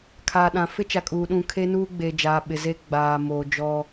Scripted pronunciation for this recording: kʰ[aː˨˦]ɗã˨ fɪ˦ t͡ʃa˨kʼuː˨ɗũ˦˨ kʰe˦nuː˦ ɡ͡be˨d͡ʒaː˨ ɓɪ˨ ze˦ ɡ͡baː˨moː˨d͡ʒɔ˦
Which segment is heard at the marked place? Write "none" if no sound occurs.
aː˨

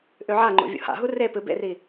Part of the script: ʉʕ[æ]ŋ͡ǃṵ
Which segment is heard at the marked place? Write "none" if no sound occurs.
a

